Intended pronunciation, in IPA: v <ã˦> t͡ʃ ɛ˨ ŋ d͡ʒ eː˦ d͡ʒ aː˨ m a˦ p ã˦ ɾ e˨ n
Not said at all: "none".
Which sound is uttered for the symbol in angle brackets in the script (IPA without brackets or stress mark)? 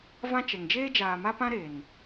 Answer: ã˦